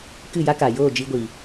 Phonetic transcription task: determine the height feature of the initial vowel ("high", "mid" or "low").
high